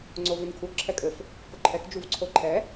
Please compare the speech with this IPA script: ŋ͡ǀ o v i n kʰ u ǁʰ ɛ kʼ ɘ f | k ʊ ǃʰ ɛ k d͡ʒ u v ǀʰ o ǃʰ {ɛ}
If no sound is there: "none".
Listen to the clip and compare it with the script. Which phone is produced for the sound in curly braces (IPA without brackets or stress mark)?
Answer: ɛ